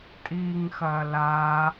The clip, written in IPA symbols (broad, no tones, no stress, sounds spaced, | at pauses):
tʼ iː ŋ x ɐː l aː